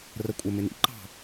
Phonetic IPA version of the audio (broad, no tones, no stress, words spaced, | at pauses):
rəkʷʼəmɪ nḭǃɑ̤